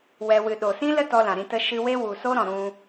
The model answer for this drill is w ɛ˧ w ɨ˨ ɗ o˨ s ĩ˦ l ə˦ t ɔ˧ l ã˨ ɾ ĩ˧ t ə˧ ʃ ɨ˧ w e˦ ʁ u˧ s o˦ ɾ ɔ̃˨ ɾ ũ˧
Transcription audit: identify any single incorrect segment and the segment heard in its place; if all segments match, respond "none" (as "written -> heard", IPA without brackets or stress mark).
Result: ʁ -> w